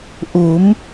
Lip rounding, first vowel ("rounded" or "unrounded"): rounded